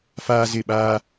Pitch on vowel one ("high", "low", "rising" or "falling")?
high